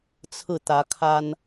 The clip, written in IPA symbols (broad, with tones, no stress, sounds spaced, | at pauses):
t͡sʰ ɹ̩˥˨ t̪ ä˨˦ kʰ a˦ n